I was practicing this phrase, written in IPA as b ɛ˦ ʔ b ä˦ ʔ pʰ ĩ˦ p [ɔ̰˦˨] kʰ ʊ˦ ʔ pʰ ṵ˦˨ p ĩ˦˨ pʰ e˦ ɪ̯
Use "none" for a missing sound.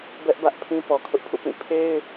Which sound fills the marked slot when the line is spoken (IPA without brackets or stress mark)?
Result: ɔ˨